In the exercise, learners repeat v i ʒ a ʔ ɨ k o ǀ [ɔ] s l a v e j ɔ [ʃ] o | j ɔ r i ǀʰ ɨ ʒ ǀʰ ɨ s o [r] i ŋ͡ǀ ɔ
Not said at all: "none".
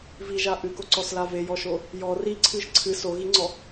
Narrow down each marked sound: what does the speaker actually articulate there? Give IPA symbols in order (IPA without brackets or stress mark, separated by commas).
ɔ, ʃ, ɣ